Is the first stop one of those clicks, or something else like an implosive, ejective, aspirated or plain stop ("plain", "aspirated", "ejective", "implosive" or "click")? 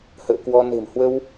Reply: plain